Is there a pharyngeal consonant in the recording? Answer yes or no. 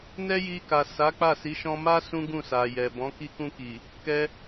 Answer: no